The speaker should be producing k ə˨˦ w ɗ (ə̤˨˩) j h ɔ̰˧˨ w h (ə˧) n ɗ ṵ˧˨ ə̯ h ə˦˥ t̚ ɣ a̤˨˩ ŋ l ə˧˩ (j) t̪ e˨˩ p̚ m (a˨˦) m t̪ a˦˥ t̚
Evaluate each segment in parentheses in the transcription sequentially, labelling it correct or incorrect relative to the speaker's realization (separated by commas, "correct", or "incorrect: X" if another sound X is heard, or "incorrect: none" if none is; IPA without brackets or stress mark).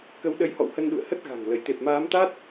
incorrect: ə˨˦, correct, correct, incorrect: aː˨˦